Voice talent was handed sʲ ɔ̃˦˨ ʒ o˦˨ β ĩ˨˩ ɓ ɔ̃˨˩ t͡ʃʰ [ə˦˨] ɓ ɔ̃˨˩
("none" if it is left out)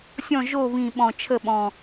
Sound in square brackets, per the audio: ə˦˨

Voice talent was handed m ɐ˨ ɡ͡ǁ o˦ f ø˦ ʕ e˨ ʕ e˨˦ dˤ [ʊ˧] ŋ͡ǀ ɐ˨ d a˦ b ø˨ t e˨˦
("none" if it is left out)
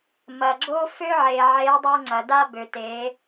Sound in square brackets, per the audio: u˧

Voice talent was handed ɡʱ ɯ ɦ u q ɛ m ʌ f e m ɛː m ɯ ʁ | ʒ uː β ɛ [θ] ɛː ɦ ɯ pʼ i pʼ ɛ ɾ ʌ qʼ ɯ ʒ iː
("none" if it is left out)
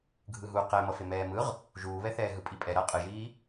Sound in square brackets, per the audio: θ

